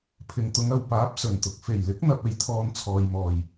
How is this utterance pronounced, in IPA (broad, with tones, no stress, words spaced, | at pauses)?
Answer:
pʰɪ˨ŋt̪ʊ˨˧ŋ ɐ˨wpaː˨˥p̚ sɵ˨˩nt̪ʊ˨k̚ fe˨˩jlɪ˨˥k̚n̪ɐ˨p̚ e˨jt̪ʰɔː˧nt͡sʰɔː˨j mɔː˨˩j